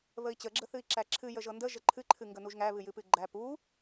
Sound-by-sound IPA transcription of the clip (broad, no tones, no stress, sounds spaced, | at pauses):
β ə i̯ t͡ɕ ə ɡ͡ǁ ə θ ɨ i̯ ǁ æ ǁʰ ɨ j ə ʒ ɤ n d ə ʒ ə ǃʰ ɨ ǃʰ ɨ ŋ ɡ ə n u ʒ ŋ æ β ɨ j ɨ p ɨ ɡ͡ǃ æ p u